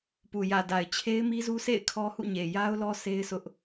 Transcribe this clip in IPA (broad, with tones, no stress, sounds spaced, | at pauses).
p u˨ j ä˨ d a˨ ɪ̯ t͡ɕʰ e˦ ɪ̯ m i˦ z u˦ sʰ ḛ˦˨ ɪ̯ kʰ ɔ˦ h ṵ˦˨ ɲ e˨ j a˦ ʊ̯ l ɔ˦ s e˦ ɪ̯ sʰ ʊ˦ ʔ